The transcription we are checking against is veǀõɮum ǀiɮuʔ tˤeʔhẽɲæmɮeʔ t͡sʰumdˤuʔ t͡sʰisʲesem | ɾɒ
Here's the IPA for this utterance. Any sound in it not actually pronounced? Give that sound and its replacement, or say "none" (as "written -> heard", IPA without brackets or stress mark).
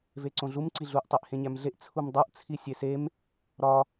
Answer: none